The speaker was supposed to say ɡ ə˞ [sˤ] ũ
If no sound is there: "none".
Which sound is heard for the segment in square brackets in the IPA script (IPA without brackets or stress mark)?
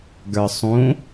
sˤ